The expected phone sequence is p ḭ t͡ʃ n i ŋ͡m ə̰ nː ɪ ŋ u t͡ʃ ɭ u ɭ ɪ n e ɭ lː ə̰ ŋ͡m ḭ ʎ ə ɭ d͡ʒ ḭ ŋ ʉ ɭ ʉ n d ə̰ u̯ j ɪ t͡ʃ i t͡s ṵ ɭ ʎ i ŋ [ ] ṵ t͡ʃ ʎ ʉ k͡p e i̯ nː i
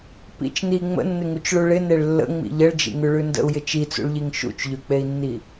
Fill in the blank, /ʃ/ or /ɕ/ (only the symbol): ʃ